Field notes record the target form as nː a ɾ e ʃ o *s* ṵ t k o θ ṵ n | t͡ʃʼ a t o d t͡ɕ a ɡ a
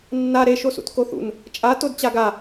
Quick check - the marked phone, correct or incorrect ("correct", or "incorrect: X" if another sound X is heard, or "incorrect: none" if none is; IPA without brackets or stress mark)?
correct